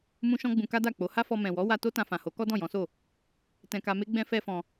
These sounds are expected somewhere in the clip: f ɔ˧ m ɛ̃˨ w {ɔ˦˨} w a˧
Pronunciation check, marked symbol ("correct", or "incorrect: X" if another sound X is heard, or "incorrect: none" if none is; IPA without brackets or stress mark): incorrect: ɔ˨˦